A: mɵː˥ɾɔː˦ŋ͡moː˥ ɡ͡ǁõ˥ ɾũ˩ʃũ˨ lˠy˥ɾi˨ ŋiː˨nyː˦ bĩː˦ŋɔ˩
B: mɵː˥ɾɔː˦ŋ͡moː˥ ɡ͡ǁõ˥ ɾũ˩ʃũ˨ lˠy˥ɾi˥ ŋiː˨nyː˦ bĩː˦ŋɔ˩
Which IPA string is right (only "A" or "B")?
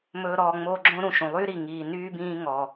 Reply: A